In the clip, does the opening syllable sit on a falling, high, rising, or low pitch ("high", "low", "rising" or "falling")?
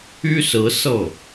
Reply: high